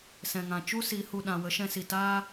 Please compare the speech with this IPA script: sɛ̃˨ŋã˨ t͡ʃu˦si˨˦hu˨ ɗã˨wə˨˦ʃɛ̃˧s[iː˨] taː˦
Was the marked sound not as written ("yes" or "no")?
yes